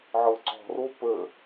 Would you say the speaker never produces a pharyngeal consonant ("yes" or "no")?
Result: no